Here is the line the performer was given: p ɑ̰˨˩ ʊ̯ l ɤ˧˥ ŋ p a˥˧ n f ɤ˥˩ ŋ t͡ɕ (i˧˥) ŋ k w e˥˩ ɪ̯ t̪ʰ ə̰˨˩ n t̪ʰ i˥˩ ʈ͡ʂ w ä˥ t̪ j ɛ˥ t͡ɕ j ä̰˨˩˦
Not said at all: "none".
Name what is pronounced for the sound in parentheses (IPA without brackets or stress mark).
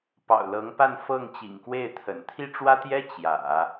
ḭ˨˩